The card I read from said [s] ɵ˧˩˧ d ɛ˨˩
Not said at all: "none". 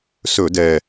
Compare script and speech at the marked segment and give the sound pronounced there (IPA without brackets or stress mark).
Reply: s